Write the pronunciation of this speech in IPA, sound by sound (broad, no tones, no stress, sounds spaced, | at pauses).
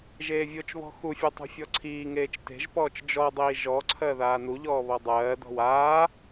ʒ eː vʲ o t͡ʃ β ɔ̤ x u fʲ a tˤ ṳ fʲ ɔ ǀʰ iː ŋ eː t͡ʃ t e̤ ʒ p ɔː t͡ʃ d͡ʒ ɔ dˤ iː ʒ ɔ ǀʰ ɜ ð aː n u ʎ ɔː β ɔ dˤ ɜː d ɔ̤ w aː